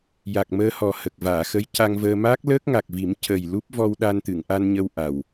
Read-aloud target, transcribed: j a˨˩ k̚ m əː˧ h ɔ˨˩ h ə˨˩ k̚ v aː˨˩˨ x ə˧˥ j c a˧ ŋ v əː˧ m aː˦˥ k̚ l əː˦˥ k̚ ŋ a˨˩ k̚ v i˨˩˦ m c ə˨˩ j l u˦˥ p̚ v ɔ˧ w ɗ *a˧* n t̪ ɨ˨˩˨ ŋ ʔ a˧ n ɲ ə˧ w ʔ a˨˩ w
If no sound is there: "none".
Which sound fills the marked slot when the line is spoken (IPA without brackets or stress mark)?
a˧